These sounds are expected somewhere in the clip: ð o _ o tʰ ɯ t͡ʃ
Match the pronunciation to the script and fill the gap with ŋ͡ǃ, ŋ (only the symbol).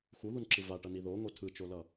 ŋ